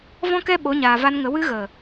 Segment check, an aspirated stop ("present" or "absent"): absent